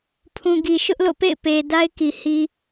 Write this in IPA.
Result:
pʰũ˨ɡi˨ʃʊ˦ʔ lo̰˦˨pḛ˦˨ɪ̯ pe˨ da˦ɪ̯ki˨ hi˨

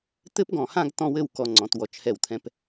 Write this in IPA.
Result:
t̪ɘ˥pɡɔ̃˧˩hã˥˧ɡ tɔ̃˥˧wɘ˥˧w kɔ˧ŋ͡ǀɔ̃˩˧t wɔ˩˧t͡ʃhɛ˧˩wt̪ʰɛ̃˧p

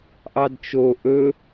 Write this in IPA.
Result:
ʔɑdt͡ʃo ʔɵ

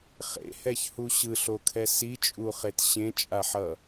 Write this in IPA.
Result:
χḛhɛçhu ɕɯɬokʰɛ sit͡ʃʼuχet ɕẽt͡ʃʼaħʌ

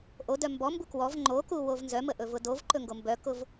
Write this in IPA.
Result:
ʔodœ mbɔmbu kwɔv ŋ͡ǃoku wovnzœmə ʔɵvʊdovǃɵ ŋɡombœkʊv

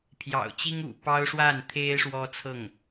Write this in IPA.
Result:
pʰjɑ̰˨˩ʊ̯t͡ɕi˥ŋ ṵ˨˩pɑ˥ʊ̯ʂwa˥˩nt̪ʰe˥ɪ̯ ʂwɔ˥t͡sʰɤ˥˩ŋ

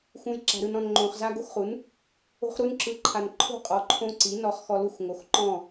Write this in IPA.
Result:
xũ˩j ǁa̤˩ɾɯ˩nɔ̃˩n ŋ͡ǃõ˩χ za˧ ɡo˥˨xχu˩˥n | o̤˧χɾu˧nǁɯ˩˥ǃʰa˩n ǃʰo̤˥˨ qʼɔ˩˥ǃʰõ˧˥ǀi˩˥ nɔ˩˥χ xɔ˧lu˥˨xŋo˩˥x ǃɔ̃˥˨

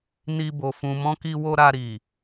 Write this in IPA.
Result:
ni˧bo˨ fũ˨mɔ̃˧ki˧wo˧ ɾa˧ɾi˨

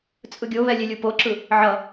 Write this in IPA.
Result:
t͡sʼɯɡʲoβɛ lʲelʲupoǁɯ | ʕʌ

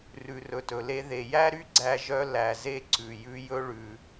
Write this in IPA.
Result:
rʉ˩rɵ˩tɵ˩le˧ ðe˩jæ˥ɾy˥ ɡ͡ǀæ˧ʒœ˧ læ˩ze˧ ǀʉ˩jʉ˧ jɵ˧ɭʉ˩

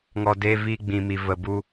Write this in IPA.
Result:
ŋɔ˨deː˧viː˧ ɡ͡bĩ˨mi˨ və˨bu˧

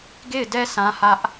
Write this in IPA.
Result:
ɡe˦˨ɪ̯dɛ˦ sʰã˦hä˦ʔ

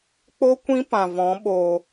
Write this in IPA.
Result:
k͡po˦ kʷĩ˦pã˨vɔ̃˨˦ ɓoː˧

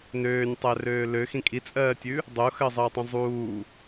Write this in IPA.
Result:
nøːnʲtˤærøː løxĩ kʼit͡sʼɜːtʲʉ | dˤoxɜzˤəːtˤõ zˤuː

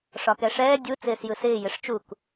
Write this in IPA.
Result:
ʂɒkɛʂɛː dʲu t͡sɪːsjɯsɪː jɪʂt͡ʃuk

